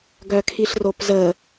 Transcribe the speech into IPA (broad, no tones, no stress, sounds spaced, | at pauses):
ɡ œ kʰ i ɬ r o p z ə